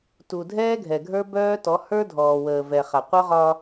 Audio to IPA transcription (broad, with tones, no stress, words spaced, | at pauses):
tu˨dʱɛː˦ɡʱɛ˨ɡʱə˞˦ bœː˦tɔ˨˦ hə˞˦dʱɔː˨wəː˨ vɛ˨ χa˨qʷœ˦ʁɒ˦